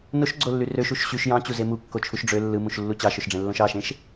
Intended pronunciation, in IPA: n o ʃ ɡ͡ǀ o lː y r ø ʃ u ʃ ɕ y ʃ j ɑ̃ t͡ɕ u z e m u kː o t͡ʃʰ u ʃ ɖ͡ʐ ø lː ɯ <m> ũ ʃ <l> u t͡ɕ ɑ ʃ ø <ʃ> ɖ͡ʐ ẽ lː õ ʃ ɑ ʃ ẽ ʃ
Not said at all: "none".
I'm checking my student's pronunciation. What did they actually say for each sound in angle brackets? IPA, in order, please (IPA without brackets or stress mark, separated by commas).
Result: m, lː, ʃ